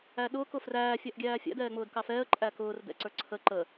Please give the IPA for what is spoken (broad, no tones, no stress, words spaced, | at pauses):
æɗʊːk ʊfræː fʲæʔɡʲæːfʲæ̰d ɛːŋ͡mʊːdkɑfɛːə̯ ǃʼækʊːr dɛ̰ǀə˞ǀʰə ǃə